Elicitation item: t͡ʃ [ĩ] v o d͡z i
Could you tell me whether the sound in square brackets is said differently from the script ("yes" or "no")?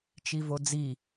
yes